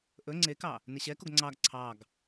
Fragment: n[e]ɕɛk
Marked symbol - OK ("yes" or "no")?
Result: yes